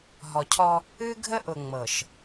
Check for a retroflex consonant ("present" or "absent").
absent